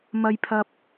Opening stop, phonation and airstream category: aspirated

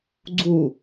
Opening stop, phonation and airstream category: click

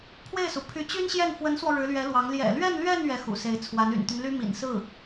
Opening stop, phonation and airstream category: aspirated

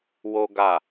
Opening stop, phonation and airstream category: plain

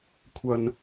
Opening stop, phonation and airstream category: aspirated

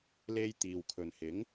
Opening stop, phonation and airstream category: plain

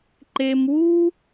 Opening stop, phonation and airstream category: click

